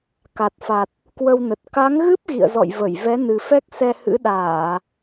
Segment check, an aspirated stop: absent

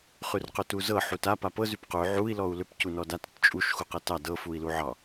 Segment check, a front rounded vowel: present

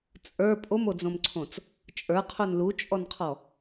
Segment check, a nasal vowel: present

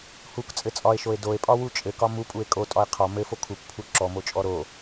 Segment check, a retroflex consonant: absent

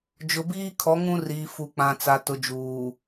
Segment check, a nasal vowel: present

